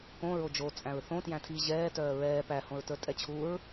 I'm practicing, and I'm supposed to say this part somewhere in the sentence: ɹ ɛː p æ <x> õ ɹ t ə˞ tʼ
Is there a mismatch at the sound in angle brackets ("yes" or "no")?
yes